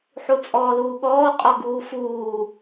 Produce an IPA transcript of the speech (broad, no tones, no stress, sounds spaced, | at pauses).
ħ u t͡sʼ ɔː l uː ɠ ɔː qʼ ɔ ɡ uː f uː